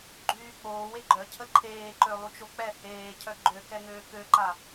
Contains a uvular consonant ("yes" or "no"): no